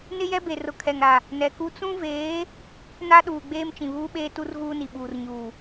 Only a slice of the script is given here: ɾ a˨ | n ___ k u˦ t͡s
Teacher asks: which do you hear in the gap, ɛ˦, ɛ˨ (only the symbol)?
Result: ɛ˨